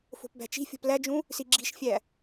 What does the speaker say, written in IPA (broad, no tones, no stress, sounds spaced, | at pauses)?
f o̤ p b æ̤ t͡ʃ i̤ fʲ o̤ p l æ d͡ʒ ũ | s i ɡ͡ǁ i̤ ʃ fʲ æ